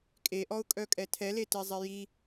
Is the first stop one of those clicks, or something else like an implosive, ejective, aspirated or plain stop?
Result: ejective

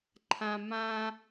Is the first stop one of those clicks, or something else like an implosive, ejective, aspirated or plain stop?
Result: click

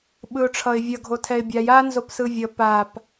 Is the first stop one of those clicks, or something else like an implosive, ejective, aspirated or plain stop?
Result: implosive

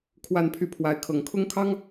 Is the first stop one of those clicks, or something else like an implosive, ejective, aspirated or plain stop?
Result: aspirated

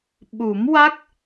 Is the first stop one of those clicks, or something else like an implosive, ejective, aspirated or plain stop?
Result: implosive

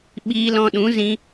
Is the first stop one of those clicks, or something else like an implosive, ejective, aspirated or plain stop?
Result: implosive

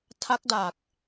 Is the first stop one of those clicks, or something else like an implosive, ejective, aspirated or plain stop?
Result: aspirated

